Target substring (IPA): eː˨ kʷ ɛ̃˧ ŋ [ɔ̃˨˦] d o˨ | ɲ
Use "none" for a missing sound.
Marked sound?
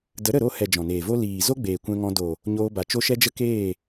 ɔ̃˧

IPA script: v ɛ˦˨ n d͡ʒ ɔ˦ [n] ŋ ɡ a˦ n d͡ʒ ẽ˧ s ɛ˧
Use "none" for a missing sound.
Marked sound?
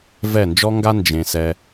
none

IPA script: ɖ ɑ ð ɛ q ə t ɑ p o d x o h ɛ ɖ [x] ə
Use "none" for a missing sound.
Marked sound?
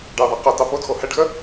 x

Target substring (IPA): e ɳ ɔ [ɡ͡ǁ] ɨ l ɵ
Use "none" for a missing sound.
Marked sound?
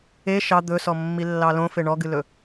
ɡ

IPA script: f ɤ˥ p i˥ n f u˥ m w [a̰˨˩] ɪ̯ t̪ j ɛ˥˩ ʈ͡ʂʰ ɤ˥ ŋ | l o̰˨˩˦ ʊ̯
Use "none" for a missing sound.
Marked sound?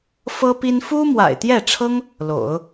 a̰˨˩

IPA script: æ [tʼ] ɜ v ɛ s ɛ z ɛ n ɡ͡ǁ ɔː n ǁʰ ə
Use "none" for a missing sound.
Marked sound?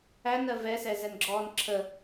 n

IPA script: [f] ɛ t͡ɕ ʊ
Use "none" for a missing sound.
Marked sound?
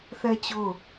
θ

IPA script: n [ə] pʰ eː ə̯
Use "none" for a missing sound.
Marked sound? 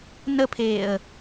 ə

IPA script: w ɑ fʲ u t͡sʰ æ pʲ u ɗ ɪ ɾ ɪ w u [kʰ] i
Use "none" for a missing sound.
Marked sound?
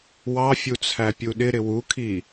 kʰ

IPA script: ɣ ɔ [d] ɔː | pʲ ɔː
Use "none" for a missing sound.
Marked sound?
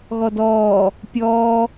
d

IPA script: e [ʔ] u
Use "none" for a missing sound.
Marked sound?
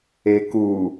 k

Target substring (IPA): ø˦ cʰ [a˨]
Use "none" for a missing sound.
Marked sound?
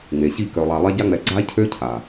a˨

